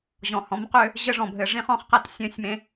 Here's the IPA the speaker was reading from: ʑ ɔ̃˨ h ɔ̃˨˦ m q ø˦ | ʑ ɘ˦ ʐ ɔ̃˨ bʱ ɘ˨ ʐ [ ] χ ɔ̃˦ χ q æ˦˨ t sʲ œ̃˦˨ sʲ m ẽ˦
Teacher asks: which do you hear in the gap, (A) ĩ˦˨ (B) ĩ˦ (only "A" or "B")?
B